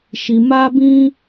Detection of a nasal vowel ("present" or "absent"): present